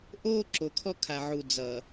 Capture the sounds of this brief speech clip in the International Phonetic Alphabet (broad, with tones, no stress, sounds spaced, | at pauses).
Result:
ʔ oː˦ ǁ o˨ kʰ ɔ˦ kʰ a˨ ʕ u˨ d͡z ʌ˨